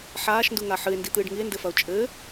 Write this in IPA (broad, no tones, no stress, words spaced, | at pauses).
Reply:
ħaːʃnduŋa ħɨe̯ndit̪ɨːɖ ŋie̯ndɘfɐo̯ t͡ʃʼɘː